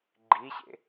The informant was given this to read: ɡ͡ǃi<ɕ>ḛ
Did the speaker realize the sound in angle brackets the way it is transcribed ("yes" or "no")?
yes